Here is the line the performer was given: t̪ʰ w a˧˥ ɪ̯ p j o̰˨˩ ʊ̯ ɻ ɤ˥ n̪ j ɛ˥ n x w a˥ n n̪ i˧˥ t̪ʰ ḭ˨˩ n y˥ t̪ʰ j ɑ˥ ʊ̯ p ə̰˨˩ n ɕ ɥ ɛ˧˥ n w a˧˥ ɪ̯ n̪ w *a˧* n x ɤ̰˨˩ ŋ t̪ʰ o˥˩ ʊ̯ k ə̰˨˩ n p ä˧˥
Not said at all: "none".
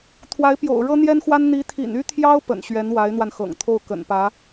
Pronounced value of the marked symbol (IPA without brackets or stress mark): a˧